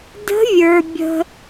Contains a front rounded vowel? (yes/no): no